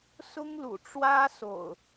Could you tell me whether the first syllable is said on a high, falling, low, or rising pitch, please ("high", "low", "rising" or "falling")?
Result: high